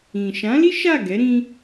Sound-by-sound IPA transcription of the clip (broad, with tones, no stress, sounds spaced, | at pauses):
ĩ˨ ʃ ã˨˦ l i˦ ʃ a˦˨ ɡ ɛ˨˦ ɾ ĩ˦